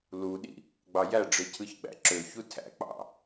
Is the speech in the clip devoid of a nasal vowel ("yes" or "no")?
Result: yes